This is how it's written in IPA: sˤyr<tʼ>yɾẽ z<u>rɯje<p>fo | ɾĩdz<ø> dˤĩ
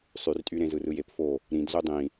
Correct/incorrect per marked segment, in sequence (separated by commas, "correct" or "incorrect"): correct, incorrect, correct, correct